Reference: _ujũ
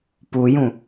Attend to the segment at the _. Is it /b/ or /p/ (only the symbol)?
p